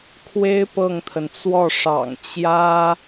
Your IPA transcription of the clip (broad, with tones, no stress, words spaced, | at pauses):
kʰwe˥ɪ̯ pɤ˥˩ŋt̪ʰə˩nt͡swɔ˥˩ʂɑ̰˨˩ŋ t͡ɕjä˥